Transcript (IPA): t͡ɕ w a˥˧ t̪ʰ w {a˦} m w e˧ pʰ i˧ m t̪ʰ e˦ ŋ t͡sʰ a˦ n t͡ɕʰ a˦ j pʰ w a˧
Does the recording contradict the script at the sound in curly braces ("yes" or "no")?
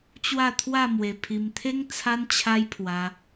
yes